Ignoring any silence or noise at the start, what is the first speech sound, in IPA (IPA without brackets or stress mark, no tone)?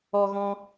ɔ